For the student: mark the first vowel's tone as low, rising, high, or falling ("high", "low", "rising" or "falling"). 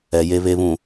low